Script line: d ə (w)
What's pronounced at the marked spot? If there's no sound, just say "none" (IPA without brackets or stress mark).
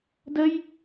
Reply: j